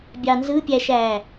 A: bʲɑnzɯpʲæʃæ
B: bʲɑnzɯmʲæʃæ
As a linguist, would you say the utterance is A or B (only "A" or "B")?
A